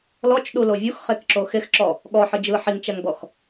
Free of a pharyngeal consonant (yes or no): no